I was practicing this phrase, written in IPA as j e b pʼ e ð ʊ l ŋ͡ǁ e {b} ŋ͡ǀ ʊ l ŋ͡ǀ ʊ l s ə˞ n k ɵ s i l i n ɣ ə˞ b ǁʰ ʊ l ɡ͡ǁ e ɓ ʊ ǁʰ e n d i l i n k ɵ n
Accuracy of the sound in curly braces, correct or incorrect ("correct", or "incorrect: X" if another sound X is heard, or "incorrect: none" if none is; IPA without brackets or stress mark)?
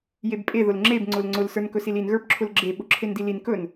correct